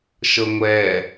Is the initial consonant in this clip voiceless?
yes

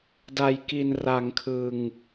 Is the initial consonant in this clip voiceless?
no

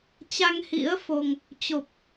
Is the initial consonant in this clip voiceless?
yes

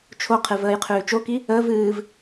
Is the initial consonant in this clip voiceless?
yes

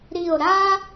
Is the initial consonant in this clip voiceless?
no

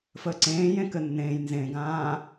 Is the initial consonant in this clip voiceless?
yes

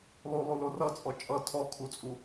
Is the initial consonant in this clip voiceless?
no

